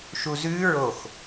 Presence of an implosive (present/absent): absent